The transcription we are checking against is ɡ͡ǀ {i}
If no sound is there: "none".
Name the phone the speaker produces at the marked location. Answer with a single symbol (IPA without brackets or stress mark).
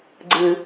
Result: ɨ